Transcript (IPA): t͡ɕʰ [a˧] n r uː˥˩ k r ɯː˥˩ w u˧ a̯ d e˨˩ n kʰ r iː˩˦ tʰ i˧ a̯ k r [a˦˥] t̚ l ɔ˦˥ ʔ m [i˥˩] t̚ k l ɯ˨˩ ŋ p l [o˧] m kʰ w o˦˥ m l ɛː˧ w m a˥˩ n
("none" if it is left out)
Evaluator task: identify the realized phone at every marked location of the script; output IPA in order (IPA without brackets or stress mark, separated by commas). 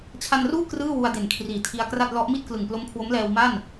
a˧, a˥˩, i˥˩, o˦˥